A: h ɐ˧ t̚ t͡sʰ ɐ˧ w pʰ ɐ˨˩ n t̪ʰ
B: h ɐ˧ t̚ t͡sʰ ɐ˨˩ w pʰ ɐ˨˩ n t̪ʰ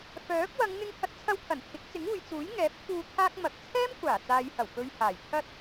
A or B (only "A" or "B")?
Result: A